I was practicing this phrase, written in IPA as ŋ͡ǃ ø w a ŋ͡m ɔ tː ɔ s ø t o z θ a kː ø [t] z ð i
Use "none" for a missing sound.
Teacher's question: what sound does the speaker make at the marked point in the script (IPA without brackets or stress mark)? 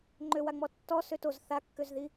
none